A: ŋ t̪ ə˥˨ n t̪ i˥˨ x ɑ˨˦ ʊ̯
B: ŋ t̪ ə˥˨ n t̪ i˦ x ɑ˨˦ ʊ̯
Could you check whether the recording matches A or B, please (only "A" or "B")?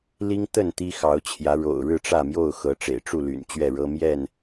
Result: B